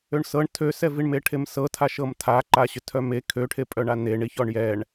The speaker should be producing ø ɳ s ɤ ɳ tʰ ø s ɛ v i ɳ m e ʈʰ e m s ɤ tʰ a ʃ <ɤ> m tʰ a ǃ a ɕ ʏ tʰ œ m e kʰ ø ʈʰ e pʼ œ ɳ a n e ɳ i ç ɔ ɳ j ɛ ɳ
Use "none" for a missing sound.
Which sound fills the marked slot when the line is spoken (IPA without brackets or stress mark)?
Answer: ɤ